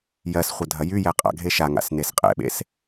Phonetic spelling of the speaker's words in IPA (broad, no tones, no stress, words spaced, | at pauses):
jɜs χʷədʱɐjyjɛ qʼa̰ ɡʱeʃaŋa̰s nesqʼɛ̰ɓḛs